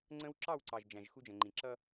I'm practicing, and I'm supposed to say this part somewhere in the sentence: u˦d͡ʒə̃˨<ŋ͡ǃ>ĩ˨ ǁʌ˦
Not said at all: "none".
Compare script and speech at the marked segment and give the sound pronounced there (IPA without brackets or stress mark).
ŋ͡ǃ